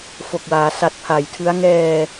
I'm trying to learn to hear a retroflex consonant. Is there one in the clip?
no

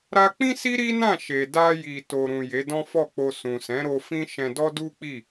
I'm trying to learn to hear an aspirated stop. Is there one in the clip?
no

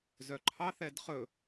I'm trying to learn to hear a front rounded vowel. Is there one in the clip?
yes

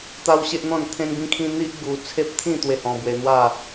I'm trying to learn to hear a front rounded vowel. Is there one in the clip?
no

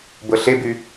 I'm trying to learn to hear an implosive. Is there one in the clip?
no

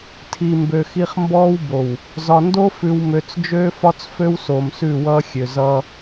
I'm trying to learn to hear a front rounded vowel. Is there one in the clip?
yes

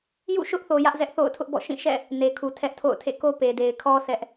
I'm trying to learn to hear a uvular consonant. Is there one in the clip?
no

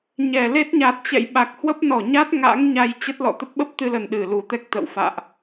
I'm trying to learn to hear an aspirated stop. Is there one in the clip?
no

